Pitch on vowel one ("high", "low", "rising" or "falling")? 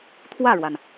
falling